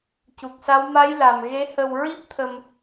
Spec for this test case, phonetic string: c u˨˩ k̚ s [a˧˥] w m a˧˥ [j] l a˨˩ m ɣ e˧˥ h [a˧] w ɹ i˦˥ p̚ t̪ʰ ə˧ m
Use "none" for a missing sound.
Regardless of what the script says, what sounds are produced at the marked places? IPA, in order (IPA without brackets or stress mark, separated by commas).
a˧˥, j, ə˧